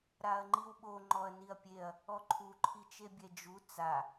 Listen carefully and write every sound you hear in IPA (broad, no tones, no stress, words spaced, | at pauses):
ɾaɐ̯ŋ͡ǃiwɓo ŋ͡ǃɔɐ̯niɐ̯pʲeɐ̯ | ɔǃʰu ǃʰit͡ʃebʲɛd͡ʒu t͡sa